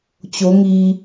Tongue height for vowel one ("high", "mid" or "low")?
mid